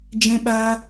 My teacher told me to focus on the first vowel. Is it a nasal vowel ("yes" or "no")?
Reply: yes